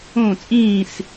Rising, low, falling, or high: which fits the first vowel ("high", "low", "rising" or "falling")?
falling